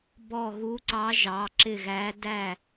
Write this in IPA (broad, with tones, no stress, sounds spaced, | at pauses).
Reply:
b ɔ˧˩ ɣ u˨˦ ǀ ɑ˨˦ ʒ ɑ˨˦ ǁ ɪ˧˩ ɣ æ˨˦ d æ˧˩